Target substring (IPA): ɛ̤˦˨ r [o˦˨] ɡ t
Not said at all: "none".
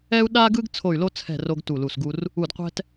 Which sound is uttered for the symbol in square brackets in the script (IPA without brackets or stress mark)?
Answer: o˥